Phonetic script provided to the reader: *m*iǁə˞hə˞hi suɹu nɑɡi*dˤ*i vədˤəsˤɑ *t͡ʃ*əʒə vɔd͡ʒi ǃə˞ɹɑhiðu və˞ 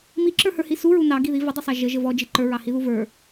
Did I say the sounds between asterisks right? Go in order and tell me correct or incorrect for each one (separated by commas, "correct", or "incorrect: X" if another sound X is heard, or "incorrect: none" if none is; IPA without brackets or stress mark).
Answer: correct, incorrect: ð, incorrect: ʒ